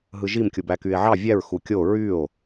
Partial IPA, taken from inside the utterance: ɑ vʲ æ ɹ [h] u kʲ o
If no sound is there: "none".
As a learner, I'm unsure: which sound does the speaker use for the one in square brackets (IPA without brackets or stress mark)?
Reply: x